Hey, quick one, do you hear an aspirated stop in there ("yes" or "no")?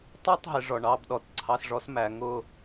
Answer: yes